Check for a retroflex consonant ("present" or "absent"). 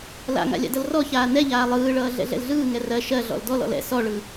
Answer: present